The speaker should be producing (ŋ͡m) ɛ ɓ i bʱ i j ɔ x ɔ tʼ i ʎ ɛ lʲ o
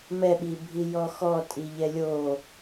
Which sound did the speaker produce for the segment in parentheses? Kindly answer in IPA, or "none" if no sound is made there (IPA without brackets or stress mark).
m